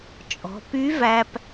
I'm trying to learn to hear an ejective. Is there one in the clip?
yes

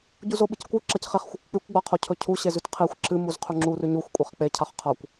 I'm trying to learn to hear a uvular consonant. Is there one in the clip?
yes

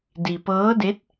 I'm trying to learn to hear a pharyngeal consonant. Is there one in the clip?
no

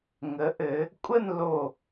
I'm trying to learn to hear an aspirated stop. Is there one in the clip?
no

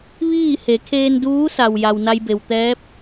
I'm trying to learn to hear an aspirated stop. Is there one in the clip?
yes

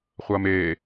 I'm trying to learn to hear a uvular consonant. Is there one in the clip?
yes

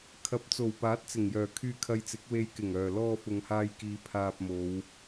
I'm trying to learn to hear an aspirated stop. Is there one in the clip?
yes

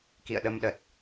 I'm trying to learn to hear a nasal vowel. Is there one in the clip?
no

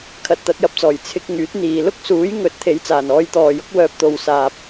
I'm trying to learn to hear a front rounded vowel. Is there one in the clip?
yes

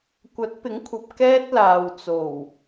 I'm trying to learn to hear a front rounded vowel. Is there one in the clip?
no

